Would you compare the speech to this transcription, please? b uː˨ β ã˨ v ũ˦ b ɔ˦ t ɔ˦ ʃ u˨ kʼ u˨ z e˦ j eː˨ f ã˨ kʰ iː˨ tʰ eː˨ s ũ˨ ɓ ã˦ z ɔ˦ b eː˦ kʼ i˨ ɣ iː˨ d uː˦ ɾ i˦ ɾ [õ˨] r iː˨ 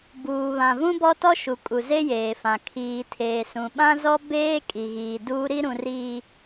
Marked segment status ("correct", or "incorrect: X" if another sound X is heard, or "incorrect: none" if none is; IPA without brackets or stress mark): incorrect: ũ˨